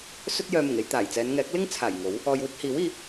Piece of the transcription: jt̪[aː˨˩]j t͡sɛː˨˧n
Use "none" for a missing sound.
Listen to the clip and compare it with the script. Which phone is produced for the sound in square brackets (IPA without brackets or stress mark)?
aː˨˩